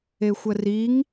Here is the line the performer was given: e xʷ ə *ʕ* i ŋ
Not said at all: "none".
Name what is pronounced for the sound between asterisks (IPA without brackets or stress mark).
r